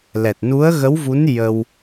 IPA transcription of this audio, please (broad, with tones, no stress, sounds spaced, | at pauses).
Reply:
l ɛ˨˩ t̚ n u˧˥ ə̯ ɣ ə˧˥ w v u˧˥ n j ə˧ w